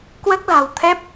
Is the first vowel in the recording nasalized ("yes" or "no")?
no